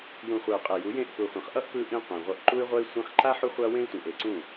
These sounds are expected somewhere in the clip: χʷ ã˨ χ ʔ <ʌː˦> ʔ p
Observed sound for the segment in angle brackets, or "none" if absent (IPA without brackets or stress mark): ʌ˦